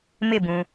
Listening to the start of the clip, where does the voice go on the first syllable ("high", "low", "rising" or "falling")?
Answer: falling